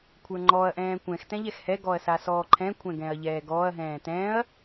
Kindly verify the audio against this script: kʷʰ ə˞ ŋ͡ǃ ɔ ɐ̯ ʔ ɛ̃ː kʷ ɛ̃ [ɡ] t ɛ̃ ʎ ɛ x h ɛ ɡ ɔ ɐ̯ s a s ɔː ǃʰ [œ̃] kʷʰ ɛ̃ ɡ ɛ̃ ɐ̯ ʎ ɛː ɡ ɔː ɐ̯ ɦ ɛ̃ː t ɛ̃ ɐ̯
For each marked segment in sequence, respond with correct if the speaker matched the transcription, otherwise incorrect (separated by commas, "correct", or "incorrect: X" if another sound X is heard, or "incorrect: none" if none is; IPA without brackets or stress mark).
incorrect: x, incorrect: ɛ̃